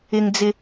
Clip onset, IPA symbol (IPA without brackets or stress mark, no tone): ɪ